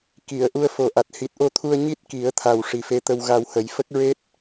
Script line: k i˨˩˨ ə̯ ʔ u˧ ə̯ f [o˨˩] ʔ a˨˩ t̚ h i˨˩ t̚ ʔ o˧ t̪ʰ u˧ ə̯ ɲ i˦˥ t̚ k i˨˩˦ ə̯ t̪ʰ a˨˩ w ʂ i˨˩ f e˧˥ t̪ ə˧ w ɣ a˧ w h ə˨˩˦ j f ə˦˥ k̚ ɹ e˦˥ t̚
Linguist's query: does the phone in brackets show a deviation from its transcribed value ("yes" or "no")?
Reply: no